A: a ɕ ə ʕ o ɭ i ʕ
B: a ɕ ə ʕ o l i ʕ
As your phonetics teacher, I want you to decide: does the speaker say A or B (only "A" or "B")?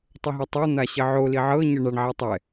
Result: B